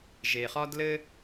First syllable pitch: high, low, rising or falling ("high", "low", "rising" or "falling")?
low